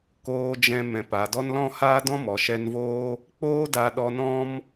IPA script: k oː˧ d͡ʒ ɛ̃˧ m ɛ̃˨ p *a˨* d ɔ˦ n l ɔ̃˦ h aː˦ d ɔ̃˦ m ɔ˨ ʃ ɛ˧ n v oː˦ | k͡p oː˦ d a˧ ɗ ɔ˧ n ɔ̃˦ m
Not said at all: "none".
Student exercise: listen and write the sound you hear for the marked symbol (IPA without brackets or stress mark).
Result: a˨